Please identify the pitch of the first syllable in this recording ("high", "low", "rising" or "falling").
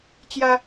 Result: high